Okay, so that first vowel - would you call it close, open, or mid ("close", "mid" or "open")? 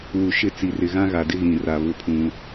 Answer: close